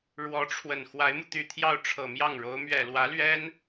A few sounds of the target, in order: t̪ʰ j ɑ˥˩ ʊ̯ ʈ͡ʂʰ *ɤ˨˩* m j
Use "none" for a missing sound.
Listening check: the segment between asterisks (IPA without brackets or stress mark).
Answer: ɤ˨˩